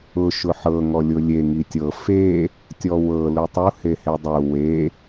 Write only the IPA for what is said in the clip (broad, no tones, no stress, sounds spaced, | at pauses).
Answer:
ʊ ʃ ʊ ħ ɤ ŋ ɔ lʲ ʊ lʲ e ŋ i tʲ ɤ f e | tʲ ɔ w ɤ l u tˤ u h e h e dˤ u w e